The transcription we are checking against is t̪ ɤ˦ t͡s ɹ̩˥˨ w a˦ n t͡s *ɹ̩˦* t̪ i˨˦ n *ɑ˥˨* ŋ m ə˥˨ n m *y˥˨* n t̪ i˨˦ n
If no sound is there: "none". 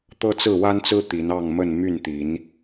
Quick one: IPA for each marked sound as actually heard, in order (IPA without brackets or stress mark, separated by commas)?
ɹ̩˦, ɑ˥˨, y˥˨